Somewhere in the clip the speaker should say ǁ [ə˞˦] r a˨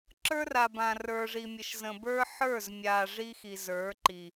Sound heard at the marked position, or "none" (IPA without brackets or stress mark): ə˞˦